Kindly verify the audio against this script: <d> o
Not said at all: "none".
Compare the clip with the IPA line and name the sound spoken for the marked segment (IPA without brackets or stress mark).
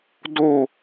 d